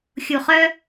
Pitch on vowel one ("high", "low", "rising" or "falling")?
low